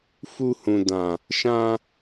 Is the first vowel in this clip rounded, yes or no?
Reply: yes